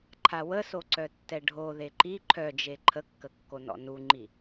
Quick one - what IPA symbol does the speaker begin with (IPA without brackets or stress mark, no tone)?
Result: ǃʰ